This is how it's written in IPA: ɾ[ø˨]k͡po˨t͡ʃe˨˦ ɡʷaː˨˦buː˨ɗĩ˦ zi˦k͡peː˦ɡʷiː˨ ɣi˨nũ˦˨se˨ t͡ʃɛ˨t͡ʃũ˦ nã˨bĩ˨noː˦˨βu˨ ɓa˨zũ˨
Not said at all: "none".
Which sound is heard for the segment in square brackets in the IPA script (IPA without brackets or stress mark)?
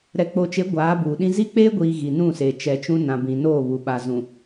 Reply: ɛ˨